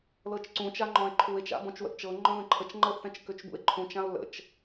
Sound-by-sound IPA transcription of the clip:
lɤt͡ʃǀũ t͡ʃaŋ͡ǃɔ̃e̯ǃʰue̯t͡ʃa̰ bɔ̃t͡ʃwə̰ʔt͡ʃɤ ŋ͡ǃɔ̃ðə̃ǃʰət͡ʃ ŋ͡ǃɤʔθɛ̃t͡ʃ køt͡ʃbṵe̯ǃʰũt͡ʃ ão̯lə̰t͡ʃ

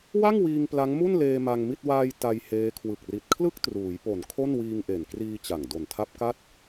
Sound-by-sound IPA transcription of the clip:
wa˥˩ŋwiː˧ŋ pla˦˥ŋmu˥˩n leː˧ ma˧ŋmi˥˩t̚ waː˧j ta˧j heː˦˥ kʰwɯ˨˩k̚ri˨˩t̚kʰlɯ˥˩k̚ truː˩˦jpo˨˩n kʰo˥˩nwiː˧ŋʔe˨˩nkriː˧ t͡ɕa˨˩ŋ do˨˩ntʰa˦˥p̚ka˥˩t̚

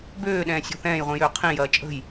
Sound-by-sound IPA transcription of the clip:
bøːɗɛ̃ːsʲɔ̤ θɛ̃ːjʁʷĩjøː qʰĩjɐː t͡ʃʼə̤j

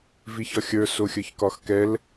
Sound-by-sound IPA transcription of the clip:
viçɒxʲə˞ soxʲə˞çkɒxkɛl

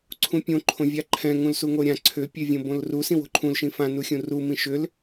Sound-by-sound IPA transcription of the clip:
ǀʰũpʲõ ǃʰõvʲaǃʰɛ̃ ŋũlsuŋoɾʲã ǀʰʏ pʲøvʲõbõlru sĩwo̤ǃʰũl ʃĩfã nuxʲũru mĩʃʏl

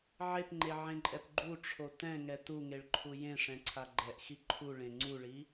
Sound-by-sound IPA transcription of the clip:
ʕepŋ͡ǃeʕẽǃʼɛp ɡ͡ǃuʈ͡ʂʰo tɛ̃ŋɛ tuŋeɭǃʰu jẽʂɛ̃ǀʰa ɡ͡ǃɛʔxi ǃʰuɭẽ ŋ͡ǀuɭi

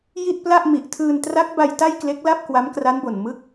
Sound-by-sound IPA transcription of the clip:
ji˥˩t̚pla˥˩ʔmi˨˩ʔ tʰɯː˧ntra˦˥k̚ba˧j ta˥˩jkle˦˥k̚la˥˩p̚ kwa˦˥mkra˦˥nbo˨˩n mɯ˦˥k̚

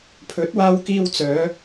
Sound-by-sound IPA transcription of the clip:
pʰɵ˨˥t̚waː˧wkiː˧wt͡sœː˨˧

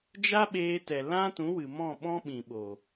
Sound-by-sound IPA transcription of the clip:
d͡ʒa˦ɓeː˧tɛ˨ lã˦tũ˨˦wɨ˨ mɔ̃˦˨ ɓɔ̃˦ɓĩ˨ɓo˨

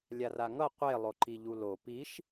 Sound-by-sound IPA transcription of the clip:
lʲaraŋʌ qʷe lˠoǃiʎulo piʃ

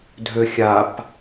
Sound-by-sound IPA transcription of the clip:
dʱøxʲap

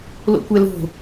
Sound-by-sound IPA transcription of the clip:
lo̰kʷɛlo̤

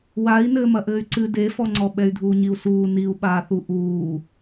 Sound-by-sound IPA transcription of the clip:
wai̯nɘː mɐʔɘːy̯ǀɨ defɔŋ͡ǀɔ ɓɛy̯dʱuːɲiu̯suː niu̯ɓaːθu ʔuː

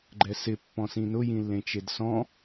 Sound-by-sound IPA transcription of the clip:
ɡ͡ǃɛsɪ pːɔ̃sĩnʊ jĩlːẽt͡ʃedsɔ̃

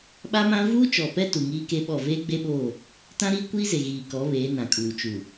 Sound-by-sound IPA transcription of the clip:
ɓa˦mã˦ vuː˦t͡ʃɔ˨pɛ˦ tu˨ŋiː˦ke˦ɓɔ˦˨ veː˦ɡ͡be˦ɓoː˦˨ | tã˦ɾiː˦kʷiː˦ze˨ ɣiː˨kɔ˨˦ βeː˨˦nã˨kʼuː˨ t͡ʃu˨

